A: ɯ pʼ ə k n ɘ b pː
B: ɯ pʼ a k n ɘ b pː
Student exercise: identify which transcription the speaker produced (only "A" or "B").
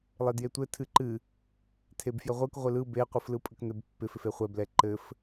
A